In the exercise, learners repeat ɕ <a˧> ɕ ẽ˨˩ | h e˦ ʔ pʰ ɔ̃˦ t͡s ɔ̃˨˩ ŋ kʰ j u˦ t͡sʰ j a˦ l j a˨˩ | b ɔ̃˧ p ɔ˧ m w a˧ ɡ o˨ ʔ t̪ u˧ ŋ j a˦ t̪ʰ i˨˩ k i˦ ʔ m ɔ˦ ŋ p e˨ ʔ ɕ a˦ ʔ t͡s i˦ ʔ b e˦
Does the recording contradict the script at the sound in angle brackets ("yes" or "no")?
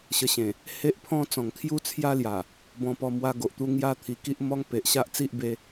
yes